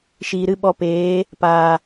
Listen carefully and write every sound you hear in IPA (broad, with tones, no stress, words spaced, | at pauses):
ʃiː˨ɾɨ˦ɓɔ˧ peː˨˦ | paː˨